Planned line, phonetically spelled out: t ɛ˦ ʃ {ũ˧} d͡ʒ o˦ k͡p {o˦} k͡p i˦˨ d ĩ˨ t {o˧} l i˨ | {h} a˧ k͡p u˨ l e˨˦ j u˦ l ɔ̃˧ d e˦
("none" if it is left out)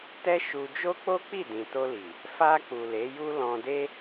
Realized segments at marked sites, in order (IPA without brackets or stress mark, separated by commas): u˧, o˦, o˧, f